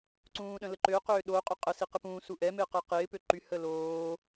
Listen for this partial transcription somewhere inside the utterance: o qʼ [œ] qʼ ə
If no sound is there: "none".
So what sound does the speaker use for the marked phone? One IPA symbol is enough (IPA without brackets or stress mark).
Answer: œ